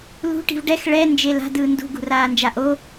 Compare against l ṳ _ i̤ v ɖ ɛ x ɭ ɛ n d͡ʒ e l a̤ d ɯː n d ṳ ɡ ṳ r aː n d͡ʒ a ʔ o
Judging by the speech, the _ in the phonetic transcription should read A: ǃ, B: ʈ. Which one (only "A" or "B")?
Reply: B